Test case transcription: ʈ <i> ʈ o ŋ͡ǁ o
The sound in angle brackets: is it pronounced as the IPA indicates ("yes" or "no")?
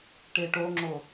no